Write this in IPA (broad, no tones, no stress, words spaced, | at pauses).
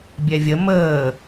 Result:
bʲɛvʲə məː